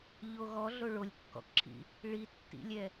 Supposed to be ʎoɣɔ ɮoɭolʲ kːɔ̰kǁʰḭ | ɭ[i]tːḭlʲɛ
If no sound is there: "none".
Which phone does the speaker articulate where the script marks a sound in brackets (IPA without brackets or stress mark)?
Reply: i